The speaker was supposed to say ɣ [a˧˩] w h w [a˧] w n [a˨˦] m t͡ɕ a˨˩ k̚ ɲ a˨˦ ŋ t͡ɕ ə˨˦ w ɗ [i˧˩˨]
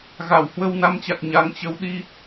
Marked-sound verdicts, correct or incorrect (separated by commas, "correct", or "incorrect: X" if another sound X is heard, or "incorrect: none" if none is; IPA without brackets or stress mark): correct, incorrect: ə˧, correct, incorrect: i˧